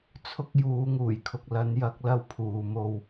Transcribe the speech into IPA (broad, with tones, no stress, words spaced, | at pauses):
t͡sʰʊ˥k̚juː˨˧ ŋuː˨˩jkʰʊ˨k̚ lɐ˨˧njɐ˧k̚ lɐ˥wpʰuː˨mo˧w